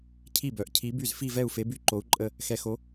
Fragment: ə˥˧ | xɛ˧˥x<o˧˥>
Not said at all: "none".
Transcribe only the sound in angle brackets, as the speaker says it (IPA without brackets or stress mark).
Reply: o˧˥